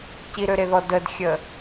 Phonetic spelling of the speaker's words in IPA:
ciɾøɾeðɔ dədxʲə

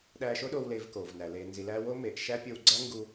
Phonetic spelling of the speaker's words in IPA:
ɗæː˧ʃo˦ɗoː˧w leː˧vkoː˨vnæ˨ leː˨nzi˨læː˧ wo˦ meː˨ʔʃæ˦pʲo˧w ɡ͡ǀæ˦ŋɡu˧

